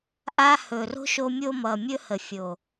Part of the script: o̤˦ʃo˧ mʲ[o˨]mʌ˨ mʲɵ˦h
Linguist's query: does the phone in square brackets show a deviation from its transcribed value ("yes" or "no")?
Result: yes